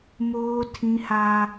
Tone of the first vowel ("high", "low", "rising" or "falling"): high